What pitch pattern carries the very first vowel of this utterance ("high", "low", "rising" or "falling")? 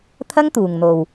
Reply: high